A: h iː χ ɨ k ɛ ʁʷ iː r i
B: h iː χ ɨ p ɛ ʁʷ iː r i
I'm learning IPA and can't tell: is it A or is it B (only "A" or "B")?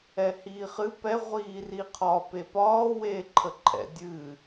B